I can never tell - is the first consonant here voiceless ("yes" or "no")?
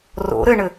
no